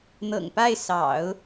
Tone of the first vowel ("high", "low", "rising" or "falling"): low